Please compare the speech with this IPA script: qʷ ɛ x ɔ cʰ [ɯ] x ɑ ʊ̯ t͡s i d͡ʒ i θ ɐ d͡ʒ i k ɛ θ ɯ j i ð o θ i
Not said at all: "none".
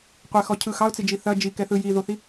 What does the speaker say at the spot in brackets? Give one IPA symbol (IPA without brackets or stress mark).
ɯ